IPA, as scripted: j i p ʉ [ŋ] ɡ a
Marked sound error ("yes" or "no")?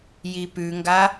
no